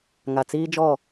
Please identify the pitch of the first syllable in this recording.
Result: low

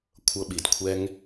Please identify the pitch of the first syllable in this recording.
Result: high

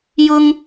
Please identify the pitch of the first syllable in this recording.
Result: high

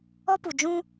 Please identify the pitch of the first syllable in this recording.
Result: high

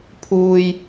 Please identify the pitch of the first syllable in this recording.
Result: low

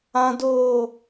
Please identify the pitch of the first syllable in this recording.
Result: high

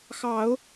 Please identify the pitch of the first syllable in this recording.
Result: rising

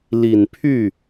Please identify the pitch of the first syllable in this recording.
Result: low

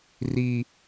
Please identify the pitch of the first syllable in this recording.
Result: high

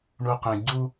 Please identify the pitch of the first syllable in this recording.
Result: high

